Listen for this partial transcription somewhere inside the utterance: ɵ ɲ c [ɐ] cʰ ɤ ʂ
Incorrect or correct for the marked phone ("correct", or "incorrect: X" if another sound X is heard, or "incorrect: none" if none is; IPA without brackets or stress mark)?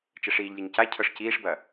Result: incorrect: a